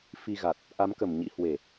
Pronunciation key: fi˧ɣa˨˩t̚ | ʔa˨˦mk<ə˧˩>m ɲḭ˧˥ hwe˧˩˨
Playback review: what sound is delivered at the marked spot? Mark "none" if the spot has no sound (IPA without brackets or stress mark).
ə˧˩